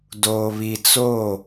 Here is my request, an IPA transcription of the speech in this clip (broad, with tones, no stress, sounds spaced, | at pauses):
d oː˨ β i˨ t͡s o˦˨